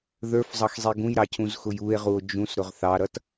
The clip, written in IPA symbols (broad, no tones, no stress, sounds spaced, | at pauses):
ð ə˞ f zˤ ʌ x zˤ i ɡ ũ j ɾ ɑ cʰ ũ z x ʊ j u e̯ ʁ u o̯ d͡ʒ ũ s ɾ ʊ ʁ θ ɑ ɾ ʌ t